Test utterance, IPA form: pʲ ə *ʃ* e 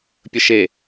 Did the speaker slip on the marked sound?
no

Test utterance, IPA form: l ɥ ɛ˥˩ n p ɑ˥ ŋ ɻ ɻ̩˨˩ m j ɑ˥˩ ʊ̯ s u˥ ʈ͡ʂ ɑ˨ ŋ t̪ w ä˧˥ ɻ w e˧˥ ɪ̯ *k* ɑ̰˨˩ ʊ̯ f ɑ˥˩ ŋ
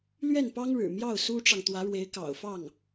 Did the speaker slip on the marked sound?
no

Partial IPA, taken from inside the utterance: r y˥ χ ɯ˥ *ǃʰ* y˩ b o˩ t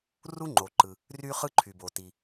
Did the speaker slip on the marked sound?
no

